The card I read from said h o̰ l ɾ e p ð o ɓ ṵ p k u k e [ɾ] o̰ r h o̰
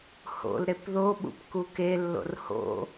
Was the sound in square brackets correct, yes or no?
no